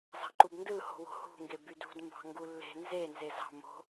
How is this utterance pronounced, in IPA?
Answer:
zɑ̤ǃubndɯ ho̤wo̤hṳ ŋɡebydṳd mbɑ̤ŋɡulːe̤ nze nzezɑ̤ mo̤

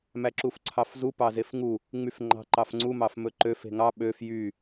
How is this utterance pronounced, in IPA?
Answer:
mæǁufǀʰɑfzu pɑzefŋu | ŋ͡myfŋ͡ǃɑ̤ǃɑfŋ͡ǀu mɑfmɵǃøf e̤ŋɑ ɓøf jy

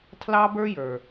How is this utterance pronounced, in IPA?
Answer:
tʰlɑ˦bə˞˦jə˞˨

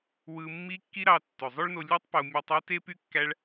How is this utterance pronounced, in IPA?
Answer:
wɯ˧ mːi˧ kːi˦ɾɑ˧ tːø˨zˤo˦ɭno˧ lʲu˦tˤpo˧ mʲɑ˧tˤe˦te˦py˦ kːæ˦ɭ

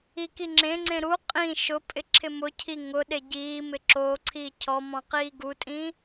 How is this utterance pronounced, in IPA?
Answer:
ikiŋ͡ǁẽŋ͡ǀẽ ɾu qʼĩ ʃʊpʼɪ ǁʰɪmʊcʰi ŋʊɗe ɟiːmɪ ǁoǀʰiː cʰɔmɔ̃ qiːɡutʼĩ

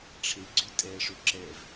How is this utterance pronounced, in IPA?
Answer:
ʈ͡ʂʰe ɡ͡ǀytʼɛə̯ʂø ǁɛv

